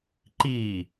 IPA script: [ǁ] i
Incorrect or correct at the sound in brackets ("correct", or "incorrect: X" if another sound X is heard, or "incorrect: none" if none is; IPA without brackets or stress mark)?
incorrect: ǃ